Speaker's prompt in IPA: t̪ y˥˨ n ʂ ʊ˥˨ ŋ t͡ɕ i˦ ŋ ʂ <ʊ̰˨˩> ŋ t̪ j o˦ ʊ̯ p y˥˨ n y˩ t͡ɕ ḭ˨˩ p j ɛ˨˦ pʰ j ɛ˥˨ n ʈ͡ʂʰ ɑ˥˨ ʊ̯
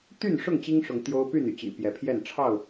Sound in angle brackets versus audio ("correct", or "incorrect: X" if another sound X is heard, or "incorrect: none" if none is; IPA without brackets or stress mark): incorrect: ʊ˨˦